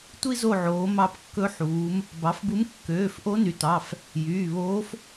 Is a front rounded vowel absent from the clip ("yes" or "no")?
no